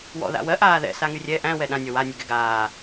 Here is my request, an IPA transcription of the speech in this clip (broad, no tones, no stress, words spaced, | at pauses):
wɔ̰ ða̰wɜ ʔaːðɛ̰ saŋyrʲɛ ʔæ̃ wɛɗã nʲɔwa nʲɛɡɛɡaː